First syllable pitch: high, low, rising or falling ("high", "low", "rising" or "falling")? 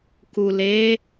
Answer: low